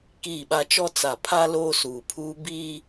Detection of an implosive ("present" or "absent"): present